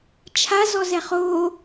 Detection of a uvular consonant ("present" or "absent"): present